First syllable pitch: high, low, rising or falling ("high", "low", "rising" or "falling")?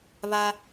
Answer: high